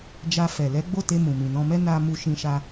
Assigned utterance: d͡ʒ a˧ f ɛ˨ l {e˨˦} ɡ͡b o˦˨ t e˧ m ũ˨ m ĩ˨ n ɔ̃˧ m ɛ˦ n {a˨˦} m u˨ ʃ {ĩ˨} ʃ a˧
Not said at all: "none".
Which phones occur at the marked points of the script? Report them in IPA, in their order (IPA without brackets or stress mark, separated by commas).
ɛ˨˦, a˧, ĩ˨